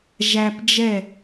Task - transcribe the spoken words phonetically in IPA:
ʒ æ˧ p d͡ʒ ɛ˦˨

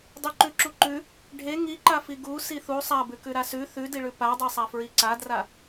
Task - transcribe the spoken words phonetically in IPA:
dˤ ʉ ǃ ʉ ǁ u ǃ ʉ | ɖʱ e ŋ i ǃ a f i ɡ u s i θ u sˤ a b ʉ k ʉ ɾ a s ʉ θ ʉ d i ɭ ʉ p a dˤ e sˤ a f ɹ i ǀ a d r a

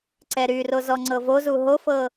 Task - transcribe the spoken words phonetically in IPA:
ǀ ɛ ɾ y r o z ɔ ŋ͡ǀ ɤ v o z u ɦ o f ɤ

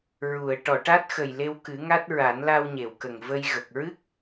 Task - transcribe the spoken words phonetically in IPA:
ɹ u˨˩˨ ə̯ ʈ ɔ˨˩˨ ʈ a˦˥ t̚ x ə˨˩ j l e˧ w k ɨ˨˩˦ ŋ a˦˥ t̚ ɹ a˨˩˦ n l a˧ w ɲ e˨˩˨ w k ə˨˩ ŋ v ə˧ j ɣ ə˨˩ k̚ ɹ ɨ˦˥ k̚

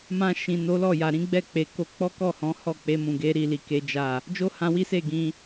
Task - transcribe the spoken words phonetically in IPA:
m ã˧ ʃ ĩ˨ n o˨˦ l ɔ˦˨ j a˨ ɾ ĩ˨˦ ɡ͡b ɛ˦˨ k͡p e˨ k o˧ k͡p ɔ˦ k ɔ˦˨ h ɔ̃˨˦ h ɔ˦˨ k͡p e˧ m ũ˨ ɡ e˨˦ ɾ i˦˨ l i˧ k e˦ d͡ʒ a˦˨ | d͡ʒ o˦ h ã˧ w i˦ s e˦˨ ɡ ĩ˧

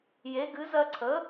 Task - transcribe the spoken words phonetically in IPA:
j e˩˥ ɡ ɨ˩˥ z ɜ˦ ǀʰ ə˩˥

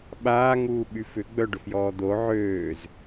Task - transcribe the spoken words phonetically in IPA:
ɓ aː ŋ uː ɓ y f ʏ ɡ͡b œ ɖ ʊ f j ɔː d̪ o ʕ øː z

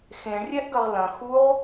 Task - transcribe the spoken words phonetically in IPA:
x ẽ ɳ rʲ ɛ ʔ ɡ ɐ ʁ l ɐ̃ x u ʁ

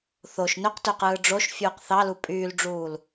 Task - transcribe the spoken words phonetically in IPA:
θ o ʃ n ø q t ø q ɯː ɖ͡ʐ o ʃ fʲ uː q θ ɑ l u pʼ yː l ɖ͡ʐ uː l

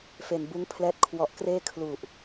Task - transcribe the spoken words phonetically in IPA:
f eː˧ n b uː˦˥ ŋ pʰ l ɛː˦˥ t̚ kʰ w ɔ˨˩ ʔ k r eː˥˩ kʰ l u˨˩ ʔ

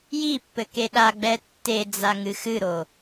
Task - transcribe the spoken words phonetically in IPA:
j i pː ɘ k e ɗ a ɡ͡b ɛ tː e d͡z a ŋ ɨ x ɨ ɾ o

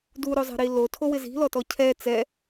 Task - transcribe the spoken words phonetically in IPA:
d u ɾ o zˤ ɛ̤ ɾ i l o tʰ o w ɪ z i̤ l ɔ t ɔ cʰ ɛ t͡s ɛ

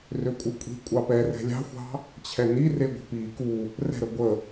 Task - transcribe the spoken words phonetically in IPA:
r ø kʷʼ ɨ kʷʼ i̤ kʷʼ ɑ p ɛ r ɛ̤ lʲ ɑ̤ xʷ ɑ̤ | t͡ɕʰ ɛ n i r e ɡʷ ə̤ p i k u | r ɛ̤ ɾ ə ɡʷ ə

